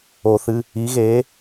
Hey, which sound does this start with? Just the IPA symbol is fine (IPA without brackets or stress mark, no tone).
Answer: o